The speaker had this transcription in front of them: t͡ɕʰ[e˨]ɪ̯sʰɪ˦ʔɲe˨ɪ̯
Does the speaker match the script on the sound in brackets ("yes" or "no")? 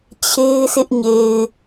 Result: no